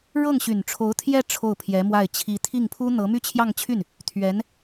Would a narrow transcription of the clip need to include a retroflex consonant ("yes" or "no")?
yes